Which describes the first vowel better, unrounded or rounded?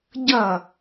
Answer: unrounded